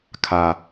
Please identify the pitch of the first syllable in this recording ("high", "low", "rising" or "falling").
low